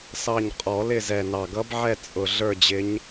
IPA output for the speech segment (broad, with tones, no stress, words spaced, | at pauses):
sɑ˦˨ɲ qʼɔ˨˩˦lɪ˦˨zɛ˨˩ nɑ˨˩ɡʌ˧˥bʕɛ˦˨ t͡sʼʊ˨˩ɮə˞˦˨d͡ʑɪ˧˥ɲ